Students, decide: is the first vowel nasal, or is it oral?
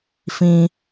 nasal